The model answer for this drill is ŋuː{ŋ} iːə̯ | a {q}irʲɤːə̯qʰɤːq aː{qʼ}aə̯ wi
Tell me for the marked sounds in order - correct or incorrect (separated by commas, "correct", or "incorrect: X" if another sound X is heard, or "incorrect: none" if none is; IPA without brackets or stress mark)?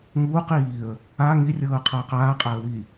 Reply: incorrect: q, incorrect: ŋ, correct